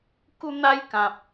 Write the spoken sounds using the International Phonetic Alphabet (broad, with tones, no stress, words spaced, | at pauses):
ku˦n̪a˦j kã˨p̚